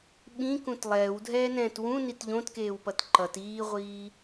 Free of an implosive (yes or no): no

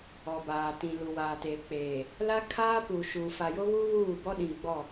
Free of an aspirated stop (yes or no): no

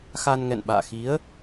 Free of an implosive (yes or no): no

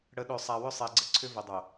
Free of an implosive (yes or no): no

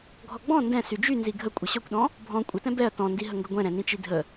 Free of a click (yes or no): yes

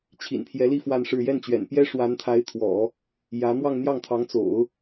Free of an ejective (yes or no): yes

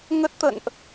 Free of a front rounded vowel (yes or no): yes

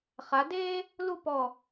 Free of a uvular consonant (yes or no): no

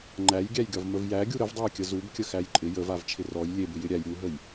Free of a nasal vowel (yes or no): yes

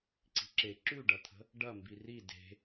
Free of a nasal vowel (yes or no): yes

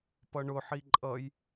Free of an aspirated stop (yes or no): yes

